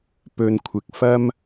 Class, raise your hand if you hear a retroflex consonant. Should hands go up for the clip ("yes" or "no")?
no